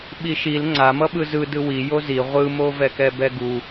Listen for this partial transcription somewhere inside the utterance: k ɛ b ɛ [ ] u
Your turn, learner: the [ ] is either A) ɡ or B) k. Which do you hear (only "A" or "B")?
A